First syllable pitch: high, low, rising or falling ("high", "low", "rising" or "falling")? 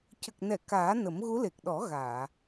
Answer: low